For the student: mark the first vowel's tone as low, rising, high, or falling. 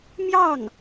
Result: falling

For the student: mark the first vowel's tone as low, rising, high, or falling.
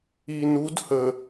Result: low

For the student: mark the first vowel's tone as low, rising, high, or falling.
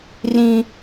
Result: high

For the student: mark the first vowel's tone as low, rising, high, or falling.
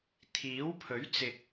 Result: rising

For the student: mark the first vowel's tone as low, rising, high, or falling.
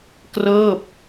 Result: falling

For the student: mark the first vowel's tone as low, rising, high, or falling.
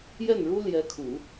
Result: falling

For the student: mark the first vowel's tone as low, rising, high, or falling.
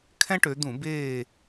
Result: high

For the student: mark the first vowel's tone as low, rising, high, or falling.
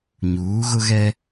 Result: rising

